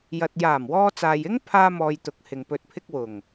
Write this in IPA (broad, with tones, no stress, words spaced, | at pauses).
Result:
jɐ˧t̚ jaː˨˩mwɔː˧t͡saː˨jɪ˥ŋ pʰaː˥mɔː˧jt̪ʊ˨˥k̚ hɪ˨ŋpɵ˧t̚pʰɪ˥k̚wʊ˨˩ŋ